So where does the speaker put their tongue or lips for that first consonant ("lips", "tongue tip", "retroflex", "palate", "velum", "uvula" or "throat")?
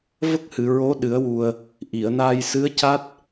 lips